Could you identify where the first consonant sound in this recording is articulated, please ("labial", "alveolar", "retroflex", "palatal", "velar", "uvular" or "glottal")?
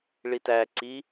retroflex